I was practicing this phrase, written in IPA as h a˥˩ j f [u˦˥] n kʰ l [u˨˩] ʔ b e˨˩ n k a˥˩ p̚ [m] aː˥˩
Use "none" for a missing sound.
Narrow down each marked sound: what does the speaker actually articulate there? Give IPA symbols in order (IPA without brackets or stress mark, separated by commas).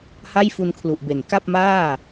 u˧, u˨˩, m